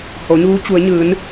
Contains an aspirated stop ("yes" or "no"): no